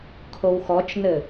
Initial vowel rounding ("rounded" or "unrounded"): rounded